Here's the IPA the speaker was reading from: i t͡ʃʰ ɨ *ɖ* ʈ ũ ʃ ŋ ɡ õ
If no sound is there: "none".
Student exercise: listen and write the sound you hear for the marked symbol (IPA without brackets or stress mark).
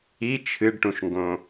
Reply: ɖ